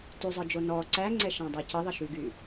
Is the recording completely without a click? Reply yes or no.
no